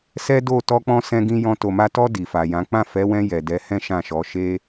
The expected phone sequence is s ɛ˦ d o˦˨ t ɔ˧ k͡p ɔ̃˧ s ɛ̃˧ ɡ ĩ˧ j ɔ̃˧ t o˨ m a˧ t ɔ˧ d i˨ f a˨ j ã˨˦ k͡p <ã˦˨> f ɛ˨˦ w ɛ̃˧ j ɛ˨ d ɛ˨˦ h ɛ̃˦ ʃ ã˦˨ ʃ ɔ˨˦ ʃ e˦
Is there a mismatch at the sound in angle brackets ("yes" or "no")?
no